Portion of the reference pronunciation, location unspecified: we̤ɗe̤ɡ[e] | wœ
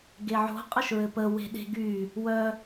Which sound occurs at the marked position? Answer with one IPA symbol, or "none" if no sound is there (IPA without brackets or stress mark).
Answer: y